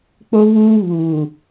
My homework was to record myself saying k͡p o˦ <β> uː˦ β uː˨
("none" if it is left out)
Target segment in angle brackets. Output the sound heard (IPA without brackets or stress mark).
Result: β